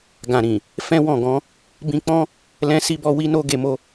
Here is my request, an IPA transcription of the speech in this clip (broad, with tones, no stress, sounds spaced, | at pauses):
ɡ ã˨ ɾ ĩ˨ | f ɛ̃˦ w ɔ̃˦˨ ɡ ɔ̃˨˦ | b ĩ˧ k͡p ɔ̃˦ | l ɛ̃˧ s i˧ b ɔ˧ w i˦ n o˦ ɡ e˧ m o˦